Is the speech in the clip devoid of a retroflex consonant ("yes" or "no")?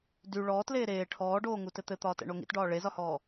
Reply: no